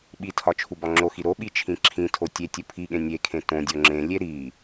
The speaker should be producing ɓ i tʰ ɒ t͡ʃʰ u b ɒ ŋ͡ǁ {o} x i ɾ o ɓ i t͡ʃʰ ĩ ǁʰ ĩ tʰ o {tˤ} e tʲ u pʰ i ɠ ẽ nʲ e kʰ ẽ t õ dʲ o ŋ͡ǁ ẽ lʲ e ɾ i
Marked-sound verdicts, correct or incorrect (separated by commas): correct, incorrect